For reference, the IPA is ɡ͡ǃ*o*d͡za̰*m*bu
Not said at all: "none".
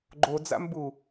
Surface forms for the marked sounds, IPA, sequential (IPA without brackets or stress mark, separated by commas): o, m